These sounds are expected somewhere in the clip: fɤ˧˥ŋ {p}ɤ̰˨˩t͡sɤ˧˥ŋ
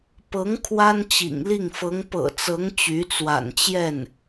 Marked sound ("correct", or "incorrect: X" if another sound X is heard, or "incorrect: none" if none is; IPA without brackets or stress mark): correct